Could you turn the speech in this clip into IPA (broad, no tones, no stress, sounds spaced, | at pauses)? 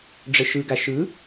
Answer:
ɖ͡ʐ ə ʃ ɯ ɡ a ʃ ɯ